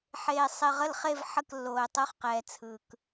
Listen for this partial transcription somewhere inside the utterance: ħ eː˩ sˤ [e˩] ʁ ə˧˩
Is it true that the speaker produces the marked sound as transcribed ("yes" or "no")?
yes